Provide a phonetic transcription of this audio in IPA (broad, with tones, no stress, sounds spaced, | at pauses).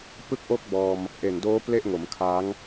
p ɯ˦˥ k̚ ʔ o˦˥ k̚ b ɔː˧ m | ʔ e˨˩ n d oː˦˥ p l e˥˩ ʔ ŋ o˩˦ m kʰ a˦˥ ŋ